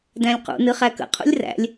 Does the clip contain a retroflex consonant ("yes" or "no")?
no